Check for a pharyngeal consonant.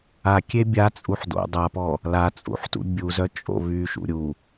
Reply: present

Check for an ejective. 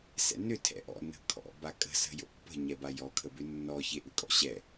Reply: present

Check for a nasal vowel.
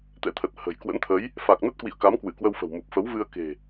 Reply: absent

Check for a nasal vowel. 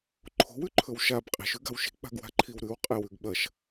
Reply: absent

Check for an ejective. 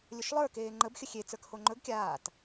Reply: absent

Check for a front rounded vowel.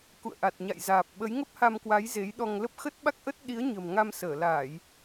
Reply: absent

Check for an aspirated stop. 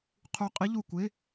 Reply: present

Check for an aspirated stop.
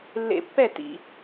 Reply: absent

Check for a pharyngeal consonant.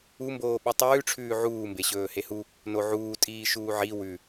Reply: present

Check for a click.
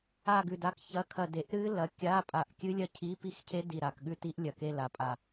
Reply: absent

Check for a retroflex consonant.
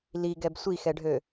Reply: present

